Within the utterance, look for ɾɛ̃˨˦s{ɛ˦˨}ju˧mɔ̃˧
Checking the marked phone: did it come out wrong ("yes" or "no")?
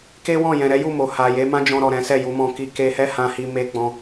no